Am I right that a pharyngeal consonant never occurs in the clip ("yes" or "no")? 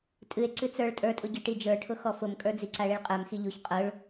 yes